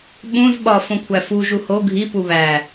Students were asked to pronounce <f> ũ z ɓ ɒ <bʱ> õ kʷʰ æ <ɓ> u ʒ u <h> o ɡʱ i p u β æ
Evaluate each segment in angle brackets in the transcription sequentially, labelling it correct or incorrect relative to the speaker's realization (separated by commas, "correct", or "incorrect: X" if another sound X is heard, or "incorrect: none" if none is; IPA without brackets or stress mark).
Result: incorrect: ɓ, incorrect: f, incorrect: f, correct